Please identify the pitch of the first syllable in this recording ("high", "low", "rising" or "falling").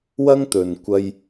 high